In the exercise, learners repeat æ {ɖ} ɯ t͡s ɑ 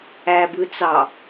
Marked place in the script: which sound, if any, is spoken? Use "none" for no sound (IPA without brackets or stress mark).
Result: b